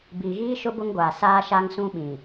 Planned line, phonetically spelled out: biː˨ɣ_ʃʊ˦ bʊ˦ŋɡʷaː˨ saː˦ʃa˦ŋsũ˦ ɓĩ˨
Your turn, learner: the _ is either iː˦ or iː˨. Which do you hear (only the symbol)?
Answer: iː˦